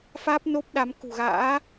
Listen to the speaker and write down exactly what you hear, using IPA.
f aː˦˥ p̚ n o˦˥ p̚ ɗ a˨˦ m k ṳ˨˩ ɣ a̰ː˧˥

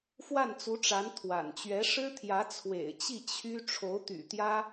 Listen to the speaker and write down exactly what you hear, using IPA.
f w a˥˩ n t͡s u˧˥ ʈ͡ʂ a˧˥ n t̪ʰ w a̰˨˩ n t͡ɕ ɥ ɛ˧˥ ʂ ɻ̩˥ t̪ʰ j ä˧˥ t͡sʰ w ḛ˨˩ ɪ̯ t͡ɕ i˥˩ t͡ɕʰ y˥ ʈ͡ʂʰ o˧˥ ʊ̯ t̪ y̰˨˩ t̪ j ä˥

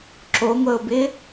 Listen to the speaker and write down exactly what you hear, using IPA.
ǁ o ŋʷ ə ʊ̯ b ɪ

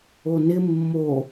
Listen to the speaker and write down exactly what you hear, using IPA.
o n ɪ mː o

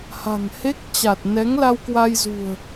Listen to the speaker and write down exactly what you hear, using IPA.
h a̤˨˩ ŋ h e˦˥ k̚ t͡ɕ a˨˩ t̚ n ɛ˨˦ ŋ l a˧ w k w a˧ j z ṳ˨˩ ə̯

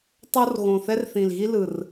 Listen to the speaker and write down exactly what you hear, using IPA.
tˤ o˦ r ɣ õ˨˩ θ ɛ˦ r θ ĩ˨˩ l ɣ i˦ l ɯ˨˩ r

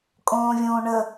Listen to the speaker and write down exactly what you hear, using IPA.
kʼ õː vʲ õː ɳ ə

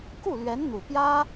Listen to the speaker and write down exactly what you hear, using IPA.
k u˥˩ l ɥ ɛ˧˥ n n̪ u˨˩ p j ä˥

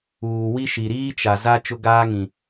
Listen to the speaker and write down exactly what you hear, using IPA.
uː˨ w i˦ ʃ i˨ ɾ iː˦ t͡ʃ a˨ z a˦ t͡ʃ ʊ˦ ɡ aː˦ ŋ ĩ˨

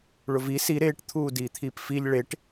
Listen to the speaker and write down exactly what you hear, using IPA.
ɭ ʊ v i s i ɾ eː ʈ t̪ʰ uː d iː t̪ʰ iː p f i ʎ ɭ e ʈ

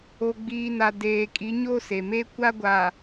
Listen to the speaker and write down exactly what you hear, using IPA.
o˨ ɡ͡b iː˨ n a˨ d eː˨ kʼ i˨˦ ɲ o˦ s e˨ m eː˦ kʷ a˦ ɡʷ a˨

